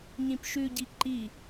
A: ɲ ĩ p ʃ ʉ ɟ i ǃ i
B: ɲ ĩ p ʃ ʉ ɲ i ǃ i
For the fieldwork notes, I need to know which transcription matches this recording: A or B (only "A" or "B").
A